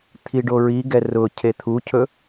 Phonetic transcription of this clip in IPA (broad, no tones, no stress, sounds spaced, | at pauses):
t̪ʰ i ɖ o ɹ i ɡ ɛ r ʊ cʰ e t̪ʰ u cʰ ɵ